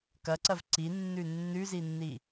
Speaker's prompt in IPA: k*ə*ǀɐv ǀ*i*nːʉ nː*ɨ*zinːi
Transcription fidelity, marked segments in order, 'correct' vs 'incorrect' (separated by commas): incorrect, correct, incorrect